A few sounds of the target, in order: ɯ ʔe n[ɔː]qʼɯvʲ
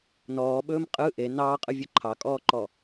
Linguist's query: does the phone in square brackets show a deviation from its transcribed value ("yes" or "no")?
yes